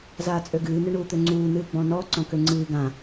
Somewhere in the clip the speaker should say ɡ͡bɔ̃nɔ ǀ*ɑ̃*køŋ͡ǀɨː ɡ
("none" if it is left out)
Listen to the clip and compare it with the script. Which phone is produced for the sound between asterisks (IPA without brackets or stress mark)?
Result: ɔ̃